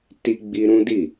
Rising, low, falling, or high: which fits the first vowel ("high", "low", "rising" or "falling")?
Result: high